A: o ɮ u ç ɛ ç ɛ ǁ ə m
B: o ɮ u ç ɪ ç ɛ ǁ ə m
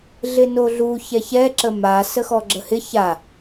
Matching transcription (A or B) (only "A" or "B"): A